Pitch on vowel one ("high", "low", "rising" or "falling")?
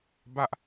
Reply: high